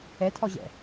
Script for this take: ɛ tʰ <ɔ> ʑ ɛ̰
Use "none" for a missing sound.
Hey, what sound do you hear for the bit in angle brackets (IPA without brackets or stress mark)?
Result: ɔ